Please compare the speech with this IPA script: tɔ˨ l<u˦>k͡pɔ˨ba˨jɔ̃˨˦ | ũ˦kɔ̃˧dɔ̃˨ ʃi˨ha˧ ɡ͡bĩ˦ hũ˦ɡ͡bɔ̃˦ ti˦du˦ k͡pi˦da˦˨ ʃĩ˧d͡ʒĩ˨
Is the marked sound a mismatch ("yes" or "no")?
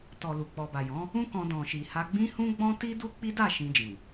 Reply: yes